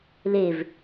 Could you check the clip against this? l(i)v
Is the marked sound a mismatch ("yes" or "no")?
yes